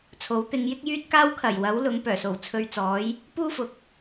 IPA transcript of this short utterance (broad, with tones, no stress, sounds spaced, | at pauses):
t͡sʰ o˨˥ w t̪ ɪ˧ ŋ j ɪ˥ k̚ j yː˧ t̚ k aː˧ w kʰ ɐ˨˩ j w ɐ˨˥ w l ʊ˨˧ ŋ p œː˨˩ s o˨˩ w t͡sʰ ɵ˧ ɥ t͡s ɔː˨˥ j | p uː˥ f ʊ˨ k̚